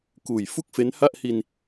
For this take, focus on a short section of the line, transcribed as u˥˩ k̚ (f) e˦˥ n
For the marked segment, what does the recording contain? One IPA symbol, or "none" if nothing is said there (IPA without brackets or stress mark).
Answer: f